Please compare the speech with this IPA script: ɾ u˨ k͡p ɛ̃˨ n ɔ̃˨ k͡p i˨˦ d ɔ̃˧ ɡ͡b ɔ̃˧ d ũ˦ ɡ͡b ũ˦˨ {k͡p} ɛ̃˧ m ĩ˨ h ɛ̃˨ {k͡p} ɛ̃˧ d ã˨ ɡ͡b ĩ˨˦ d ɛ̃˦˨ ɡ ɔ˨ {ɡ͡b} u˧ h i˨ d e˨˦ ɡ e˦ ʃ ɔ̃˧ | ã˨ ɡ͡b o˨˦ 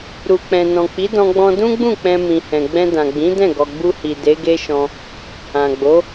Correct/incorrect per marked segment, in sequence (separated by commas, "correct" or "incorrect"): correct, incorrect, correct